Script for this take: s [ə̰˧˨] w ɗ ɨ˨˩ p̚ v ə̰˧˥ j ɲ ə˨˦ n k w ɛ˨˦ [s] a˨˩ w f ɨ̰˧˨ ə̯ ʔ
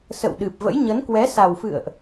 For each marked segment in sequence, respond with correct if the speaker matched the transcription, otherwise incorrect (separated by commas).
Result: correct, correct